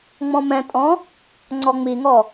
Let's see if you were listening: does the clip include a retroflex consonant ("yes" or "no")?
no